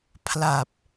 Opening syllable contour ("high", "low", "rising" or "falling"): low